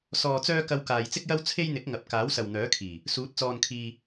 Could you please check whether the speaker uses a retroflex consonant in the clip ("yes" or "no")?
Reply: no